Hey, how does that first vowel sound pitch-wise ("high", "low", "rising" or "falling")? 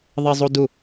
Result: high